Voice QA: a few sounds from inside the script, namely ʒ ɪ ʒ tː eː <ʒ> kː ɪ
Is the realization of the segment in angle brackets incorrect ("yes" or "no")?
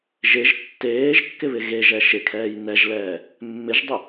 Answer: no